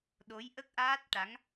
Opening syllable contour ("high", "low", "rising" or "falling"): rising